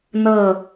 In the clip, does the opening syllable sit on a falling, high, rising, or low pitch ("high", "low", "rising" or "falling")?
falling